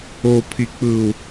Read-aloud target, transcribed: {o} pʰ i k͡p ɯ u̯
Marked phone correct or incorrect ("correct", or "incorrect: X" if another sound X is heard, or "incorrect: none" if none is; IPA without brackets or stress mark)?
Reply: correct